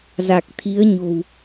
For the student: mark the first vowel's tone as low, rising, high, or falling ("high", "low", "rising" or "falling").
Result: low